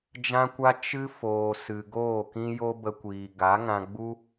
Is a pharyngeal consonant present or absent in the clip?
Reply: absent